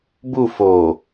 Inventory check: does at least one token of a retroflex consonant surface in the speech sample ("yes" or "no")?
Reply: no